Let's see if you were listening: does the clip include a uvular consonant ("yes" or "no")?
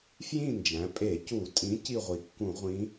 yes